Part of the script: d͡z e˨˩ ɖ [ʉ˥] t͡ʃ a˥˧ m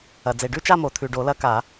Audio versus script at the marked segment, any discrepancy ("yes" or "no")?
yes